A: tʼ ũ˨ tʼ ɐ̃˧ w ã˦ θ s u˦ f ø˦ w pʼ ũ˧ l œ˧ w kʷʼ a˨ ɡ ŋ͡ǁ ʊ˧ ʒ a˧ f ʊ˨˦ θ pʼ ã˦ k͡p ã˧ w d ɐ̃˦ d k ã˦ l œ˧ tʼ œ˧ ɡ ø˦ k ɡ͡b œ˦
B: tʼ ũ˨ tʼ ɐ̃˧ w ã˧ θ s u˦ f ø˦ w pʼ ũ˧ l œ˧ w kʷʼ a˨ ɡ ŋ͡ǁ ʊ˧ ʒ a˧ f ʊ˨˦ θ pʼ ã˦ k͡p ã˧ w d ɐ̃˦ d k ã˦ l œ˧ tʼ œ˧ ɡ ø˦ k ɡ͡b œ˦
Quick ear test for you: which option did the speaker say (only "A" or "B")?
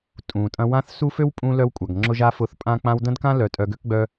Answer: A